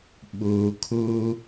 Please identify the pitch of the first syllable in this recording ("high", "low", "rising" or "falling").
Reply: low